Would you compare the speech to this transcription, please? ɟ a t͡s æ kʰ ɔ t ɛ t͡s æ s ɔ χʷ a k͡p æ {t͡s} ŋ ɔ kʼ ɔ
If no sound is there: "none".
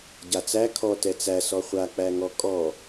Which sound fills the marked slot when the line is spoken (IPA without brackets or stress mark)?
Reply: none